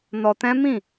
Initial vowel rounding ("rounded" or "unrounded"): rounded